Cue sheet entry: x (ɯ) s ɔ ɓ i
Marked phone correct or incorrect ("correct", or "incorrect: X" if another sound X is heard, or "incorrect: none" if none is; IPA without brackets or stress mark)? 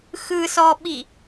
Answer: correct